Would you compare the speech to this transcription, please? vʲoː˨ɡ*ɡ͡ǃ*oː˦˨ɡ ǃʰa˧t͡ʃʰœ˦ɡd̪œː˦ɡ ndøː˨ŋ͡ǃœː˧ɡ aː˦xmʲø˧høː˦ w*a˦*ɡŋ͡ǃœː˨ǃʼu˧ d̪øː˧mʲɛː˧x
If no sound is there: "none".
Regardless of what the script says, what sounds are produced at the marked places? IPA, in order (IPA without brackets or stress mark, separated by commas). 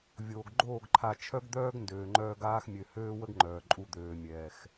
ɡ͡ǃ, ə˦